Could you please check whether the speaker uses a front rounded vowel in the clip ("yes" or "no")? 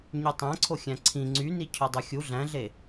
yes